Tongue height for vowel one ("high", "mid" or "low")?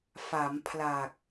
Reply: low